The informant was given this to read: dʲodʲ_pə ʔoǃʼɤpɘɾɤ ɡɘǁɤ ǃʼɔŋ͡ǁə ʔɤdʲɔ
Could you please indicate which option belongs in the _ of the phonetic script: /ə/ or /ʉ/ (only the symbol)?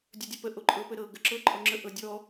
ʉ